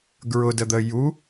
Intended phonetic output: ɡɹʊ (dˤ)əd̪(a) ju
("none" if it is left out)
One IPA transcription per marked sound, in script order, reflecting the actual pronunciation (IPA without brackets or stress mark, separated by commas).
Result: d, ə